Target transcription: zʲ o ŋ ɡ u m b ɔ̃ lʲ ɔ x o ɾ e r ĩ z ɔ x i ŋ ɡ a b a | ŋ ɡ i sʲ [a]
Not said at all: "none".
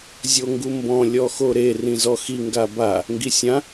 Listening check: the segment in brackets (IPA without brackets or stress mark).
ã